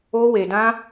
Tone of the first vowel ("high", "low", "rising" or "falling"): high